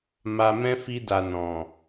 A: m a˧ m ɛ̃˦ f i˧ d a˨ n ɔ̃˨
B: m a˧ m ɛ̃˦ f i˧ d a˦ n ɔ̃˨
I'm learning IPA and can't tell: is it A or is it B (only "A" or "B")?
A